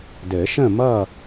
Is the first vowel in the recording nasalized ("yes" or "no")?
no